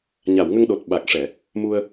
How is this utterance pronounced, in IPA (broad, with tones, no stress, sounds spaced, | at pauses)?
ɲ a˨˩˨ w ŋ ə˧ ŋ ɗ o˨˩ t̚ ɓ a˨˩ k̚ ʂ ɛ˨˩˨ | m u˧ ə̯